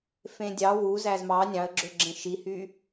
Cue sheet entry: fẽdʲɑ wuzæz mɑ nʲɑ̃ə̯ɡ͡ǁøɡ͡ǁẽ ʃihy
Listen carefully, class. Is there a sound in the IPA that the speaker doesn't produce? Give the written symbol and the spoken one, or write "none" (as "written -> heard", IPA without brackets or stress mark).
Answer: none